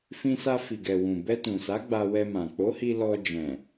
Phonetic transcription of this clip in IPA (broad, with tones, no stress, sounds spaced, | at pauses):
f ĩ˧ s a˧ f i˨ ɡ ɛ˨ w ũ˨ b ɛ˧ t ũ˨ s a˨˦ ɡ͡b a˧ w ɛ˧ m ã˨ k͡p o˨˦ h i˧ l ɔ˧ d͡ʒ ɛ̃˨